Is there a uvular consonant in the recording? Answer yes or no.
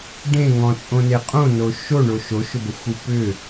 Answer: yes